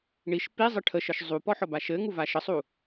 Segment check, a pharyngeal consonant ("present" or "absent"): present